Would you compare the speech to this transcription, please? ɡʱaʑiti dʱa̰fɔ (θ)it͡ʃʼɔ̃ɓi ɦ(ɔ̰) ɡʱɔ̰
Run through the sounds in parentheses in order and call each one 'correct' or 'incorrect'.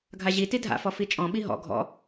incorrect: f, correct

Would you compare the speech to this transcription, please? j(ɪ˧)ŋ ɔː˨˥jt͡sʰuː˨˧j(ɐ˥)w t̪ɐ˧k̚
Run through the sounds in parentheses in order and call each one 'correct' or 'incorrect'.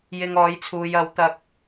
incorrect: ɪ˨, incorrect: ɐ˨˥

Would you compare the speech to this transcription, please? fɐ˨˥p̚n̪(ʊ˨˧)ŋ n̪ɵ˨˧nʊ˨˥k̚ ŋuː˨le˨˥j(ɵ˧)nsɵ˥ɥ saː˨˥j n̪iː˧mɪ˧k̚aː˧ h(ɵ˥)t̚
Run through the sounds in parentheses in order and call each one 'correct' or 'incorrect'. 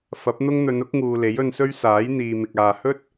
incorrect: ʊ˥, correct, correct

